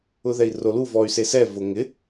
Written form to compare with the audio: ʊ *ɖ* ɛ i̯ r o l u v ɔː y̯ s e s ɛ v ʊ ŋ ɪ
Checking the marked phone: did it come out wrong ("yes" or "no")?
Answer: yes